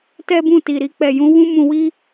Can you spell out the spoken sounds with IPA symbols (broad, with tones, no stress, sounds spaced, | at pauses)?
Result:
t ɛ˦ b ũ˦˨ t i˨ ɾ i˧ k͡p ɛ˨ j ũ˨˦ w ũ˦ m ũ˧ w i˦